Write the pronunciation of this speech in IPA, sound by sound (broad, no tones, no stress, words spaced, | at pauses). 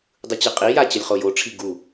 dˤɯt͡ɕɯqʼija t͡ɕʌlʲχojoʈ͡ʂʰi ɡu